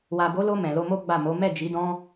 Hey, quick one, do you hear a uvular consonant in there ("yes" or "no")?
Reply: no